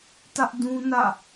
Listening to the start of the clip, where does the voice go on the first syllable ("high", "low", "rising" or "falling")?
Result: high